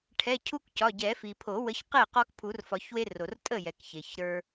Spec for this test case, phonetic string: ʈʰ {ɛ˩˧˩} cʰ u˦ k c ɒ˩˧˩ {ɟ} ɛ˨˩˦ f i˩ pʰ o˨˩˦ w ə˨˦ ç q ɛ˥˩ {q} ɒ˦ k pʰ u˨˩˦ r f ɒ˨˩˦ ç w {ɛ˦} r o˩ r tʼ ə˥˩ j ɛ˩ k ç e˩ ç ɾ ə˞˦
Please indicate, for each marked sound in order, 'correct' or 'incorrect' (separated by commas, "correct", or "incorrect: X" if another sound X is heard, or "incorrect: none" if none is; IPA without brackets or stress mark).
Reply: correct, correct, correct, incorrect: e˦